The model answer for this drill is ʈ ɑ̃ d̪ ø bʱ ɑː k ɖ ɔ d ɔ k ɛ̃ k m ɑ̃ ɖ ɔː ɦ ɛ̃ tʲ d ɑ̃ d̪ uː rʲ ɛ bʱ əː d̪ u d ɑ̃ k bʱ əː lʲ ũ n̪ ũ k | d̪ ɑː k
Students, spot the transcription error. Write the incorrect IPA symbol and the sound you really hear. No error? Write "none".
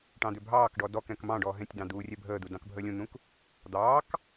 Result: none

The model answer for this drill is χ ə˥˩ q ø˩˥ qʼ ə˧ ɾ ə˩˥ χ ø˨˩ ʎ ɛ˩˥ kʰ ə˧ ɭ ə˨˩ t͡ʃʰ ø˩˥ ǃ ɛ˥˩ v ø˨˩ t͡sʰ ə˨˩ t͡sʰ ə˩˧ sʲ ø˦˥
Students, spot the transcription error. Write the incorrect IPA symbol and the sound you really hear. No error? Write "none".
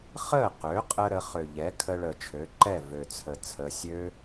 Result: none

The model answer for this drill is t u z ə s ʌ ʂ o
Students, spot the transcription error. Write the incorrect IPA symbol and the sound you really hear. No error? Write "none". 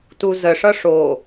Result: s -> ʂ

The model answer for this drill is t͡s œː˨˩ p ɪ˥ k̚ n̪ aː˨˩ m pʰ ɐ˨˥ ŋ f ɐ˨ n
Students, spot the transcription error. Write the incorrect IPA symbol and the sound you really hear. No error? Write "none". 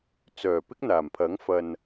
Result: none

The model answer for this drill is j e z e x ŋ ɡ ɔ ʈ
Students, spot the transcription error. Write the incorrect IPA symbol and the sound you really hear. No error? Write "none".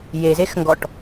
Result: none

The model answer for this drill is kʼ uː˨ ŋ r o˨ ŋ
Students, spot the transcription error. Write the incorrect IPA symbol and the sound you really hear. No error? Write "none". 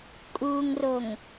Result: none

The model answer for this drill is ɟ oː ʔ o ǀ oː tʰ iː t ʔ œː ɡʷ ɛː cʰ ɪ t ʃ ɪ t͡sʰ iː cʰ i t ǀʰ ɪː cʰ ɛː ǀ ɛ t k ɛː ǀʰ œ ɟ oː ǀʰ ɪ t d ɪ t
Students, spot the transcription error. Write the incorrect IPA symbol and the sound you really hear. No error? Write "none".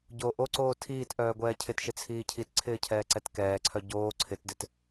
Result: none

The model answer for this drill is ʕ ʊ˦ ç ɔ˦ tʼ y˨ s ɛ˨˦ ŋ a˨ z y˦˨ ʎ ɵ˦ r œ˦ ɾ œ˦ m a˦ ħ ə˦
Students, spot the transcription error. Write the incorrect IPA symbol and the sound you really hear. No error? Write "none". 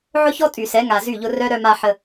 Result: ɵ˦ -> ʊ˦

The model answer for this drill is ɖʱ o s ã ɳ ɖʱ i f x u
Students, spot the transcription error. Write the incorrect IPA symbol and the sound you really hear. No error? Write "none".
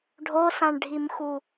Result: f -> m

